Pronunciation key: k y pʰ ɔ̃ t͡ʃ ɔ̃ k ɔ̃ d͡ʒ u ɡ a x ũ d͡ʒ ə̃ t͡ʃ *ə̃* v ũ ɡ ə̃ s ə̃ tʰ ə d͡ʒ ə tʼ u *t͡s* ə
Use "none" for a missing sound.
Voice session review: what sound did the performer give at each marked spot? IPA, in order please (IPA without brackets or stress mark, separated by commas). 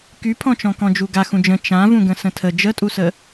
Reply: ã, s